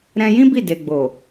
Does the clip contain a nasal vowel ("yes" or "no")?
yes